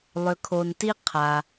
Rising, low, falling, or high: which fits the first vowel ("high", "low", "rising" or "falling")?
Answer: low